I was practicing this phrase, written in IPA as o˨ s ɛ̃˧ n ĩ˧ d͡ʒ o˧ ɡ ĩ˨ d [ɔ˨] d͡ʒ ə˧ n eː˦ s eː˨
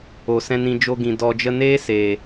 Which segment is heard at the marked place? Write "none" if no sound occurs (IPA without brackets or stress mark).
ɔ˨